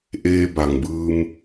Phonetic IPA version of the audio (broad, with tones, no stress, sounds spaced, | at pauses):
ʔ eː˧ b a˩ ŋ b ɯː˧ m